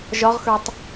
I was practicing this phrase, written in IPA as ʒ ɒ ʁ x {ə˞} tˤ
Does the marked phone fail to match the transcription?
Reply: no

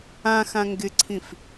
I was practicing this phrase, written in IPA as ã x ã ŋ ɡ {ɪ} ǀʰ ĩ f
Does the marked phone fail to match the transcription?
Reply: no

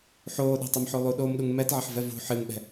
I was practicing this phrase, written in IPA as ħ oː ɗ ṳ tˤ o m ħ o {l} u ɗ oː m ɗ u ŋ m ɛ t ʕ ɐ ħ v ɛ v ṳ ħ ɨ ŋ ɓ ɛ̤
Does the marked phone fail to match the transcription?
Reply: yes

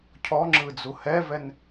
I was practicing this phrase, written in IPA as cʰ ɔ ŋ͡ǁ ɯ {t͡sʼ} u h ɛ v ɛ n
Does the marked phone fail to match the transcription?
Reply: yes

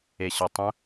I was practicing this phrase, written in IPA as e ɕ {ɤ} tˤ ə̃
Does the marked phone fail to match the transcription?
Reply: no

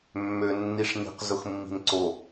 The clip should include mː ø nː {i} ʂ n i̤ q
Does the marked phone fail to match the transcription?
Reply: no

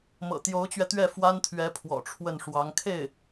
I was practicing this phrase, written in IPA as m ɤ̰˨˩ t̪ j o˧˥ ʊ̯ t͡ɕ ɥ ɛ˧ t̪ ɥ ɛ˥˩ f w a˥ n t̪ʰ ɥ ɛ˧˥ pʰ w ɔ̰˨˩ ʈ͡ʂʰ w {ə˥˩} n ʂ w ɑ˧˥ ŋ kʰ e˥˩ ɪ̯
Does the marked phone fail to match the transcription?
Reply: no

